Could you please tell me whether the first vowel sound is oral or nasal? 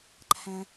nasal